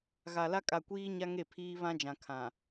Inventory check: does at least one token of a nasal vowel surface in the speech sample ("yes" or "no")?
yes